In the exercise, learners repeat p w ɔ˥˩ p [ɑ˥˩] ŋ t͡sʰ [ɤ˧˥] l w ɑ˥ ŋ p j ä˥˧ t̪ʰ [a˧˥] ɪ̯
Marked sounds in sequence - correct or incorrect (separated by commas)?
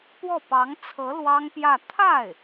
incorrect, correct, incorrect